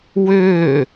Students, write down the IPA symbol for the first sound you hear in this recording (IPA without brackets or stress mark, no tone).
w